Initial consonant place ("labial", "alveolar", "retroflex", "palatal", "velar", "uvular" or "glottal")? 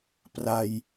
labial